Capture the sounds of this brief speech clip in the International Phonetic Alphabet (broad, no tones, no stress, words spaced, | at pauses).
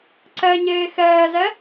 ǀɛɲeː xɛːzɛ